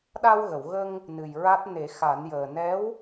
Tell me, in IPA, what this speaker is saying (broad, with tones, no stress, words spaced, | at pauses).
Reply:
ɗa˧wɣə˨˩˨wɣə˧ŋ | nɨ˨˩jɹa˦˥t̚ ne˨˩˦xa˨˩˦njəː˨˩ nɛ˧˥w